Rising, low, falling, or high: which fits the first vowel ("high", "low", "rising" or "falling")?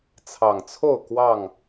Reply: low